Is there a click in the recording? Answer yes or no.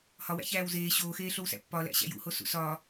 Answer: no